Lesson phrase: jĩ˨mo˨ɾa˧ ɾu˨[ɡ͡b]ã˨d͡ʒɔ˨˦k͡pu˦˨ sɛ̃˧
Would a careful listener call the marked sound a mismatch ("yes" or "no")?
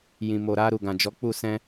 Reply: yes